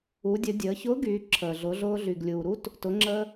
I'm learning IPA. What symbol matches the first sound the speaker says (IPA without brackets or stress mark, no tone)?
u